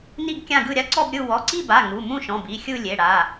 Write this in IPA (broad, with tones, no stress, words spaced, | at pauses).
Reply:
ni˥˧ɡkʲã˥˧ɡɯ˥˧ ɾʲa˥˧ǀɔ˥˧bɾʲɯ˥˧ wɔ˩˧˩ǀi˥˧ba˩˧˩ ŋu˩˧˩mũ˥˧ʃɔ̃˩˧˩b i˩˧˩xʲɯ˥˧lʲe˩˧˩ ɽa˩˧˩